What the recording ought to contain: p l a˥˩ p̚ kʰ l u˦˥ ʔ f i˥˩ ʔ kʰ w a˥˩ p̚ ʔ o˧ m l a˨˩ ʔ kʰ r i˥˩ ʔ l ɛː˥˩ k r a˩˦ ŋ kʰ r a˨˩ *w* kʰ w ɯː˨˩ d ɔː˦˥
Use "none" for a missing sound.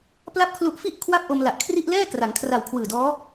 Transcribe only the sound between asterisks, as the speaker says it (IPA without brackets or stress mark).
w